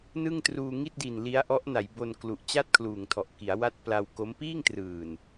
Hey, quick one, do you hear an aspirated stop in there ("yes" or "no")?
yes